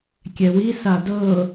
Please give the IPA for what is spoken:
kʲ ɛ w i s a d ɤ

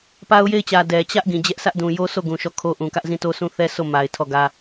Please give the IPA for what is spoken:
p a˦ ʊ̯ j e˦˨ ɪ̯ t͡ɕ ä˨ d ɛ˨ t͡ɕ ä˦ ʔ ɡ ĩ˨ d͡ʑ ɛ˦ ʔ s ä˦ ʔ d ũ˨ j o˦ sʰ o˦˨ ɡ ũ˨ ʃ ɔ˦˨ kʰ o˦ ʔ ũ˨ k ä˦ ʔ z ĩ˦˨ t o˦ s ũ˦ θ ɛ˦ sʰ o˦˨ m a˨ ɪ̯ tʰ ɔ˦˨ ɡ ä˦

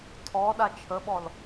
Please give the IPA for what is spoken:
tʰ ɔ ɗ a t͡ʃʰ ə ɓ ɔ l

